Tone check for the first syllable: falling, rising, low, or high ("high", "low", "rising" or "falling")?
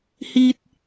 high